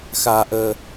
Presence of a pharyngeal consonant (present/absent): absent